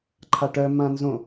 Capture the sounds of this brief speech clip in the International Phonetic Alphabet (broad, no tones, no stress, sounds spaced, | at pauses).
ǃʰ a ʈ œ m ã n z õ